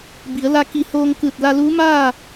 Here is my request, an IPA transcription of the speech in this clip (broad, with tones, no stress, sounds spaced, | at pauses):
b i˩˧ ə̯ l a˧ k i˧˩ h oː˧ ŋ k ɯː˧˩ t̚ l a˧ l uː˧˥ m aː˥˨